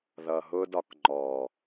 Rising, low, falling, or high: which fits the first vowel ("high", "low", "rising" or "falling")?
low